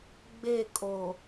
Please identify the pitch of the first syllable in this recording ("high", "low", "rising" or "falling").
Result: falling